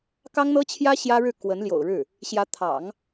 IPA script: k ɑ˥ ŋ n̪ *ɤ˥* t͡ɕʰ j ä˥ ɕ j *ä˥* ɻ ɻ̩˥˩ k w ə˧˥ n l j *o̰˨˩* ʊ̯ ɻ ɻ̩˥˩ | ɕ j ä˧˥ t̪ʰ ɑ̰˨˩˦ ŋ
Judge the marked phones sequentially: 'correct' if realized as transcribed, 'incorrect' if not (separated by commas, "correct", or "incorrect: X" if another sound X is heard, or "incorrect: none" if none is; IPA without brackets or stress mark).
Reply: correct, correct, correct